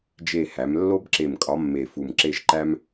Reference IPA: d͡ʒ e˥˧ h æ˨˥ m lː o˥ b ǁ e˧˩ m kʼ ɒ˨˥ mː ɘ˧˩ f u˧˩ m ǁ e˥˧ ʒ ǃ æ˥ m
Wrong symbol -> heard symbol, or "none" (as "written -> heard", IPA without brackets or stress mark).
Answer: ɘ˧˩ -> e˧˩